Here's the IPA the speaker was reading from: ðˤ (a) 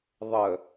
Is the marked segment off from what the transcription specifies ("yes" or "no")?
yes